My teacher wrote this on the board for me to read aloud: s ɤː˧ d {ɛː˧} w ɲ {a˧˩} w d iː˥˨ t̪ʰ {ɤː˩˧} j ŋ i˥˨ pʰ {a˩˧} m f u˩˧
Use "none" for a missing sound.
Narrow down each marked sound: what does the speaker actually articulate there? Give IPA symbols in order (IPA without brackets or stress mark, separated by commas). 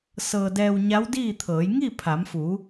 ɛː˧, a˧˥, ɤː˩˧, a˩˧